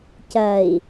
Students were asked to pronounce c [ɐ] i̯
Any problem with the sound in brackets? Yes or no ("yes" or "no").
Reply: no